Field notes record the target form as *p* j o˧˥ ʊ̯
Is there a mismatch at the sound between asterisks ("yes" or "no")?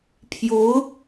yes